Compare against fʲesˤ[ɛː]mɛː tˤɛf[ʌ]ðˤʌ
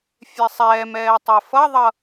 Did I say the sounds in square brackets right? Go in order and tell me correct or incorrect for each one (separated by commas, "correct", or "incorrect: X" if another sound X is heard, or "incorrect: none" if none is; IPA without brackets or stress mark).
correct, correct